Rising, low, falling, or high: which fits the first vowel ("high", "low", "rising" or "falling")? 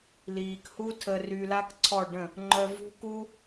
low